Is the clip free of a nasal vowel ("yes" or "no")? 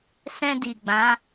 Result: no